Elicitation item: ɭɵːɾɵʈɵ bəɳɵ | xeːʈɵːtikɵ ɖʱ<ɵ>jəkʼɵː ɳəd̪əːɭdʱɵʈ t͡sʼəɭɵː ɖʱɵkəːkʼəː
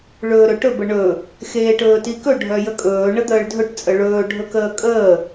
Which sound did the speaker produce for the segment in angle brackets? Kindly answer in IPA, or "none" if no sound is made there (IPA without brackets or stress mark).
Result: œ